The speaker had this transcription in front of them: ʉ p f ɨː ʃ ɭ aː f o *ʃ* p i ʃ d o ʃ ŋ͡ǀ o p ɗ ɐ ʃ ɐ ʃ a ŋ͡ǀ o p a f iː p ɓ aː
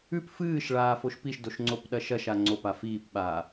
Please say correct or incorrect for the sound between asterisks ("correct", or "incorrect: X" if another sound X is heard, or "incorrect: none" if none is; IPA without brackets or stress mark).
correct